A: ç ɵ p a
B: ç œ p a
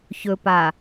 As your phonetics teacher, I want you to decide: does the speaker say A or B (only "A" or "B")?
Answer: A